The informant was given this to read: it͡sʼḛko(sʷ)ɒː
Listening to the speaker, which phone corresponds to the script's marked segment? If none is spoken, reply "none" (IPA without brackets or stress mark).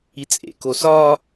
s